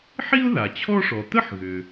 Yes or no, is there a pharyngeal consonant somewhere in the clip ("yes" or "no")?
yes